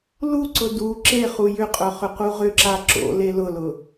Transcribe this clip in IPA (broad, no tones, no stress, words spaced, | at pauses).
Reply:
luǀʊ du ǁe χujʏqʼœ χʏquʁʏǁa ǁo̰le lʊlʊ